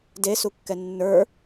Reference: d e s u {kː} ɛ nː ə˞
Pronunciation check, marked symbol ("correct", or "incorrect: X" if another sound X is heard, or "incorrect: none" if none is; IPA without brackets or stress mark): correct